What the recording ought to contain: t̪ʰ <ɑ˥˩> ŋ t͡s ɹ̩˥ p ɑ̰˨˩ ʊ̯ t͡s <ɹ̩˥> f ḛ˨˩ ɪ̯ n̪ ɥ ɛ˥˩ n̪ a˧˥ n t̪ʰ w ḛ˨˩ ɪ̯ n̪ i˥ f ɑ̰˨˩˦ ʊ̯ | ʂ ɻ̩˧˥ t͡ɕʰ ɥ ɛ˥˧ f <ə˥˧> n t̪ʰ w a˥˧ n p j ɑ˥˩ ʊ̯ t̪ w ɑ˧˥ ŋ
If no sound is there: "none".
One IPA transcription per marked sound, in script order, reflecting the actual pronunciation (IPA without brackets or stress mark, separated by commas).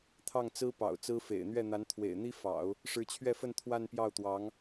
ɑ˥˩, ɹ̩˥, ə˥˧